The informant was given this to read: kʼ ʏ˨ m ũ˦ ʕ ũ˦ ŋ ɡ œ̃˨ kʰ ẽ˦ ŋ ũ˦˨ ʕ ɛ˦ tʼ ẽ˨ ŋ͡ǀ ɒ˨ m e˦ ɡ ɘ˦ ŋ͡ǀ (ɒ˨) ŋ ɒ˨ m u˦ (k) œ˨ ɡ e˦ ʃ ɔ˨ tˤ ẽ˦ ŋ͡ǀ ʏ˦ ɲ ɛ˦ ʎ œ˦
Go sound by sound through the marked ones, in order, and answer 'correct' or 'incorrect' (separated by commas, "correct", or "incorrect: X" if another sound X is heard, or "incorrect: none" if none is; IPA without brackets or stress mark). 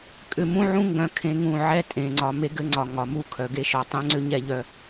correct, incorrect: kʰ